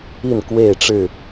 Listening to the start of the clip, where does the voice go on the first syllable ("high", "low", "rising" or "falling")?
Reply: falling